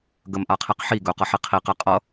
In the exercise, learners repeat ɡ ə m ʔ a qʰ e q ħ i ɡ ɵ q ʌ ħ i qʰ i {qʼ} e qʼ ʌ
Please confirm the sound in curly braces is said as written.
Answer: no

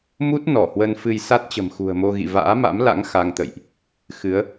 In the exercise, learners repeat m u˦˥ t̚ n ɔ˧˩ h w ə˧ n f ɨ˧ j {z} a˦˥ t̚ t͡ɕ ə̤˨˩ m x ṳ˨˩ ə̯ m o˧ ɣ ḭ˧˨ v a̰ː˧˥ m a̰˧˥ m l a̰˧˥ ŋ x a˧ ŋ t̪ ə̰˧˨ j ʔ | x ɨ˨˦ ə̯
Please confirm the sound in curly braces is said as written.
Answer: no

